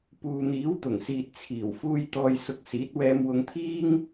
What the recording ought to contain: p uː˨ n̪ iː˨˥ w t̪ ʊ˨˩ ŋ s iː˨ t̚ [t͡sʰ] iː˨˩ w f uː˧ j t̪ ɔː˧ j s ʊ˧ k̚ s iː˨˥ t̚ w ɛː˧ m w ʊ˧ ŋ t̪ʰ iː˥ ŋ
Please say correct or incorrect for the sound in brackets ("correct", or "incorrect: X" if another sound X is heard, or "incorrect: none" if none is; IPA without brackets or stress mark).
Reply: correct